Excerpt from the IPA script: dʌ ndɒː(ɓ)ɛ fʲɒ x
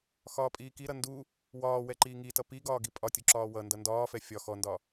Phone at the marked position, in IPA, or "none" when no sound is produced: f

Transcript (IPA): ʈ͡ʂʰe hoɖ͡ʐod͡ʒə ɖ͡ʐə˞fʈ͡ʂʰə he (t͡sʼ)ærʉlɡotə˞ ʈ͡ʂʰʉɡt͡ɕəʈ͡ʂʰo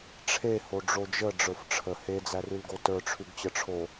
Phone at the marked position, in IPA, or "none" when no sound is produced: d͡z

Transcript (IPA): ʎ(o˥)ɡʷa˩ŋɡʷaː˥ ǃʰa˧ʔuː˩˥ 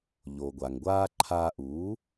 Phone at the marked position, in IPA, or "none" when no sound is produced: o˩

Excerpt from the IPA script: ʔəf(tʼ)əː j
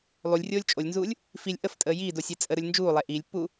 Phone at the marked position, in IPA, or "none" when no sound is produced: tʼ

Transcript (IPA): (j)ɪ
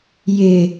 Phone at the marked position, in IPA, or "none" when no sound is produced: j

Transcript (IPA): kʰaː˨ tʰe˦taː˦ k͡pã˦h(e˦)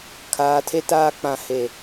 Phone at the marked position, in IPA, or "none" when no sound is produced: e˦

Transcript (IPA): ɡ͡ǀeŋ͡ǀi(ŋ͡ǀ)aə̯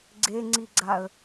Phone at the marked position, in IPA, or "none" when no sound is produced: ɡ͡ǀ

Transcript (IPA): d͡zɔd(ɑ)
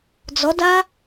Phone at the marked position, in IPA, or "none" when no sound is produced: a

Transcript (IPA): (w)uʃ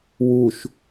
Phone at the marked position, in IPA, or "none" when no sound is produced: w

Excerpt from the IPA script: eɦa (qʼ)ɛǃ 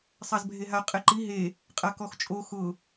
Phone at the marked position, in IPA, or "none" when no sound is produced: qʼ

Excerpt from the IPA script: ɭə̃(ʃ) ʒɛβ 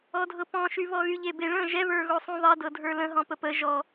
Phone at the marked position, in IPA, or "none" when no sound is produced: none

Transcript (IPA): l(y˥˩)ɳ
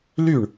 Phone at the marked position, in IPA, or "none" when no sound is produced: y˥˩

